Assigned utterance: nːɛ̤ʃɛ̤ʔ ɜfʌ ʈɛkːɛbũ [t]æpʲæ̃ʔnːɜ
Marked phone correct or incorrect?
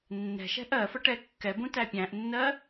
correct